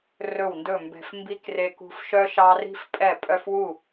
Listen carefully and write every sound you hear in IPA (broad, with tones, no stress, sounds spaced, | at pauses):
r ɵ˧˩ w n d ɵ˧˩ m b ɛ̤˧˩ f m b i˧ k r e˧ k ṳ˧ f ʃ œ˧ ʃ ɑ˧ r i̤˧ f pʼ ɛ˧˩ pʼ œ˧˩ f w u˧˩